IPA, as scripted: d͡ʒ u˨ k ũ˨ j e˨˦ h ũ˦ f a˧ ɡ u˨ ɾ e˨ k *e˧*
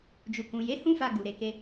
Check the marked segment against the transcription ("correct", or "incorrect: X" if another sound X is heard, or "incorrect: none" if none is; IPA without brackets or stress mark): correct